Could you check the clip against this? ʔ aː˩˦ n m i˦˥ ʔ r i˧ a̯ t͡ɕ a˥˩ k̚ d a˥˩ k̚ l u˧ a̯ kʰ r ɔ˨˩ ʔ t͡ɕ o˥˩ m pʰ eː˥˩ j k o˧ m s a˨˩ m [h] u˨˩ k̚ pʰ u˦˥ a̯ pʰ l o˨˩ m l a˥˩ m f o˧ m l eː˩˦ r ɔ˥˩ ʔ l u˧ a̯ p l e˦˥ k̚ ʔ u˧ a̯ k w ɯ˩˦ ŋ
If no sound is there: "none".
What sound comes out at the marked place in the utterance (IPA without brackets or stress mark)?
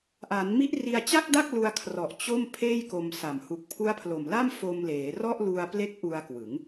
h